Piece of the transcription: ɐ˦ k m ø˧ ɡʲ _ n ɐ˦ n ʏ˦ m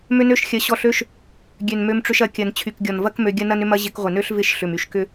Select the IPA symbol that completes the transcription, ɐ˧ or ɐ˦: ɐ˦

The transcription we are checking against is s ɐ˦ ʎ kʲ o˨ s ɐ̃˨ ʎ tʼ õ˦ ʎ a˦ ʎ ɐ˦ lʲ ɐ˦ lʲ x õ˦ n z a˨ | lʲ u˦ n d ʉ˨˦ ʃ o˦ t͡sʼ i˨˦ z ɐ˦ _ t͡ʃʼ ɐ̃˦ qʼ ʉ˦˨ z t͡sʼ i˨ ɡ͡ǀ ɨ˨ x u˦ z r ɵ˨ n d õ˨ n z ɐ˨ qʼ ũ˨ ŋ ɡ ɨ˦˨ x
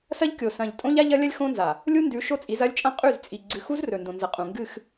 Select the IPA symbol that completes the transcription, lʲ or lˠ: lʲ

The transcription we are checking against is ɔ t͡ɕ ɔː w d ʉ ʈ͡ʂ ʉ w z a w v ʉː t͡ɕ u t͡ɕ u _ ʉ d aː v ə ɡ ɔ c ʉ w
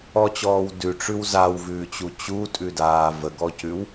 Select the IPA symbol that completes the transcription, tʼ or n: tʼ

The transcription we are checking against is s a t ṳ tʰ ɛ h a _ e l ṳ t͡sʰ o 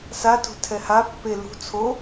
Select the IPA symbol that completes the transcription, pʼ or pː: pː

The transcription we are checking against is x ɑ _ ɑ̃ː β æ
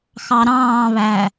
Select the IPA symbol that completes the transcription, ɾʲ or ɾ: ɾ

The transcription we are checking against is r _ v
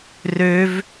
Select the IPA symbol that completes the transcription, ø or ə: ø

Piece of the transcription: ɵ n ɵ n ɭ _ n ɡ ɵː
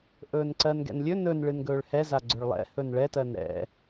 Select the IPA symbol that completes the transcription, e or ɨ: ɨ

